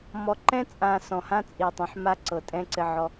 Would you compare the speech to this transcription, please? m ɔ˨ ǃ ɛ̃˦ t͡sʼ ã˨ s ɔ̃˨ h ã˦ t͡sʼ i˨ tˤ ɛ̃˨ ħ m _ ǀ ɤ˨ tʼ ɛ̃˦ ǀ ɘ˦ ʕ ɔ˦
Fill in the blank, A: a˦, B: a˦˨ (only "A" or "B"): A